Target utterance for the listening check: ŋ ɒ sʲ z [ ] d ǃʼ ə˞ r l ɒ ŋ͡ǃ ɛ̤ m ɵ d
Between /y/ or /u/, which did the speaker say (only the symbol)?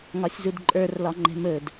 u